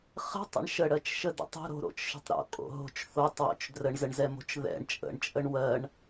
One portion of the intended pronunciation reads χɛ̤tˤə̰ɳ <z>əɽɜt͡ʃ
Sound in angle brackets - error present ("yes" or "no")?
yes